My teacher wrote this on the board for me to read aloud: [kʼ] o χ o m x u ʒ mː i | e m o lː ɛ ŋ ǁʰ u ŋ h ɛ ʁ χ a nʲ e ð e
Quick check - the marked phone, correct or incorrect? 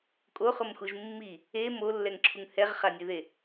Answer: correct